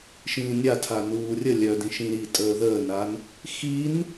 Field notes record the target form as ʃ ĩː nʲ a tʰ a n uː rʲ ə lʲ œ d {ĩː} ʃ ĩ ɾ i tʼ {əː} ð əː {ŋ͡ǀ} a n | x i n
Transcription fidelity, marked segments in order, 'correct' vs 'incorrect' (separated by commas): incorrect, correct, incorrect